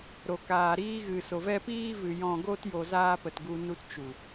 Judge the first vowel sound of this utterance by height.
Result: mid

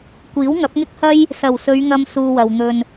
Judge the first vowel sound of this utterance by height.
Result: high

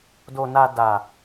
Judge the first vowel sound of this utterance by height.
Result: mid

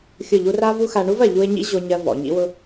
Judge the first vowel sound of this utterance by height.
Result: high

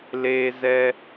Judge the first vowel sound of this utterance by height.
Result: mid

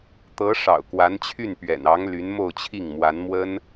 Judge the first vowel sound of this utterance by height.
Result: mid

